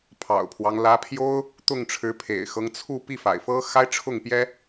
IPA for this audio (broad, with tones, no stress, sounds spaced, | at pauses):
pʰ ɑ̰˨˩ ʊ̯ pʰ w ɑ˦ ŋ l ä˧˥ pʰ j o˥ ʊ̯ | t̪ ʊ˥˩ ŋ ʈ͡ʂʰ ɻ̩˧˥ pʰ ḛ˨˩ ɪ̯ x ɤ˦ ŋ t͡sʰ u˥˧ p i˥˩ f a̰˨˩ ɪ̯ f ɤ˥ x a˥ ɪ̯ ʈ͡ʂʰ ʊ˥˩ ŋ p j ɛ˥